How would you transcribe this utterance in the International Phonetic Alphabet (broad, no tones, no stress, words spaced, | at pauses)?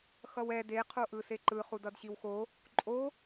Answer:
xʌwɛ de qʰoʔɯseǃɯ χudʌdɕiwxo | ǃʼo